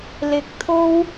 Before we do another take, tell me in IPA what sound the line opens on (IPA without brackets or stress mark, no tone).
l